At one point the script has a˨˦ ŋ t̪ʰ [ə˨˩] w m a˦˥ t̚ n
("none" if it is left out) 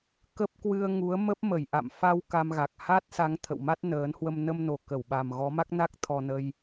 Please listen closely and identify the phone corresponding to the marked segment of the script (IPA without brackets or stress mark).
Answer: ə̰˧˨